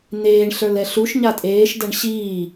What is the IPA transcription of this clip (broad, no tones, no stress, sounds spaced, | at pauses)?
n̪ eː ɳ ɬ ə˞ l ɛ ɬ u ʃ ɲ a tʼ eː ʃ d ɐ ɳ ɕ iː